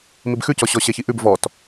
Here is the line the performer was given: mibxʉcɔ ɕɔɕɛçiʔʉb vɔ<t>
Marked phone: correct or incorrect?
correct